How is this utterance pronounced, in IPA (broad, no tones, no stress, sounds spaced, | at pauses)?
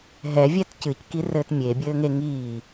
ɦ ɛ vʲ ɛ t c ɨ c k i r ɘː t mʲ e bʲ ɘː ŋ e ŋ iː